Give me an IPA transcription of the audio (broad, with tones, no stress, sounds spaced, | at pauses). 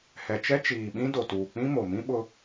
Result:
h ɛ˨ t͡ʃ ɛ˦ t͡ʃ iː˨ ɓ ĩ˦ d o˨ t uː˨ k͡p ĩ˦ m o˨ m ĩ˦ ɓ ʊ˦